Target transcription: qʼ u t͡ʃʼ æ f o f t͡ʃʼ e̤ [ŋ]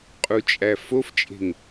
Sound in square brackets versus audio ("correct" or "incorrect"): correct